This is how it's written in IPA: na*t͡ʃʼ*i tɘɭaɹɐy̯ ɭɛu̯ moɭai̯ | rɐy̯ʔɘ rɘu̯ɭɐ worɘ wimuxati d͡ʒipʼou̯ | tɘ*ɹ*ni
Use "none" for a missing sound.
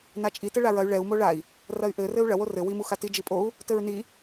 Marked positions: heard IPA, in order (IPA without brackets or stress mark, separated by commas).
t͡ʃʼ, ɹ